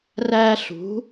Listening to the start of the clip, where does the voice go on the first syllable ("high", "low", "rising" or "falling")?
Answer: high